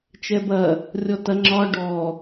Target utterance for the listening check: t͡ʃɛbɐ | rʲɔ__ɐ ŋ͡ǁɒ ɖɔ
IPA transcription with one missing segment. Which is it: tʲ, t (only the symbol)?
t